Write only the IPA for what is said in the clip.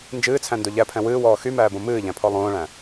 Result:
nd͡ʒɨːt͡sʰæ̃ndo ʎæpʰɛ̃ wɨːwɔː xymæːbõ mɨːʎæ̃pʰɔ lˠõːɭæ̃

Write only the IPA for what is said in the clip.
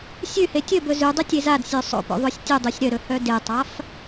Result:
sʲʉhe tʲɵ bɵzʉdˤʉ tʲezadsʲø sˤo̰ po̰ðˤosʲtʲudˤʉsʲ ɾœɾɵ hœdetˤaf

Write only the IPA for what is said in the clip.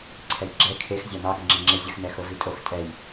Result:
ǀʰɛjɡ͡ǁɛ kʰex zʲɑnɑɡəŋ͡ǁɛ ŋ͡ǁɪ zʲəxnɛ xovitʼox tʼɛj

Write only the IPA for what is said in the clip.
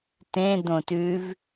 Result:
tẽ d̪õtʉv

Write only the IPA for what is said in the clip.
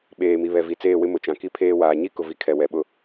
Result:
ɓeː˨mi˨ βɛ˨ vi˨t͡seː˦˨wɪ˦ mʊ˨t͡ʃã˨ki˦˨ pʰeː˦waː˨ ɲi˦kʊ˨vi˨ kʰɛ˨wɛ˨ɓʊ˦

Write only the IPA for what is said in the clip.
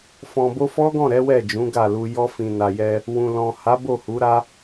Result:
fɔ̃˨bo˧fɔ˦ɡɔ̃˦˨ ɾɛ˨˦wɛ˦˨d͡ʒũ˨˦ ɡa˦˨lu˧ jɔ˧fĩ˨na˨jɛ˧ | wũ˨ lɔ̃˨ha˨˦ bo˦˨hu˨˦ɾa˦

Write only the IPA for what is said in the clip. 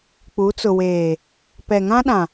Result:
k͡pu˨˦t͡sʊ˨weː˨ | pɛ˨ŋã˦ɗã˨

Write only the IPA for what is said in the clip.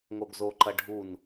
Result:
ŋoɡzoǃɐ ɖʱun

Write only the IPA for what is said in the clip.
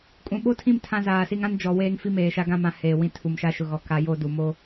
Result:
kʼũ˨ɓo˦tʰĩ˦˨m tʰã˦zaː˨si˦ŋ ã˦nd͡ʒɔ˨ weː˦ŋfi˦ meː˨ʃa˦ɡã˦mã˨ heː˨wĩ˦ tʰu˨mʃa˦ʃʊ˨ɣɔ˨ ka˦jo˦du˨ mo˦

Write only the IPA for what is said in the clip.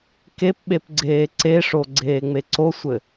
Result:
kep ɓepɡ͡ǀeːǀeʂo ɡ͡ǀeːŋ͡meǀosʷɘ

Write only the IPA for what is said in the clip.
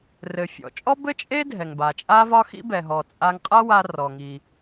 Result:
rɘ˩fʲɔ̰˩t͡ʃʼɔ˥ bɘ˥t͡ʃʼe˥ dʱɛ˩ŋba˩t͡ʃʼa˥vɒ˥ xḭ˥bɛ˩ɦɔ˩ t͡sʼa˧ŋqʼa˥wa˧ rɔ˩ŋi˩

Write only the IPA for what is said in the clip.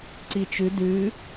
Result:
ǀit͡ʃʉ dʉ

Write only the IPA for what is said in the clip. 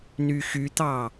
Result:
nyxyt̪ɑ

